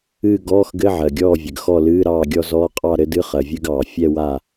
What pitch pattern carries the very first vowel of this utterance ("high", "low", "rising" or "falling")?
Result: falling